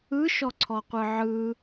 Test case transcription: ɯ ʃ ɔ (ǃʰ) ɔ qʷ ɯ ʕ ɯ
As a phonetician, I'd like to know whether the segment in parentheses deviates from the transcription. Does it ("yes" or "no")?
yes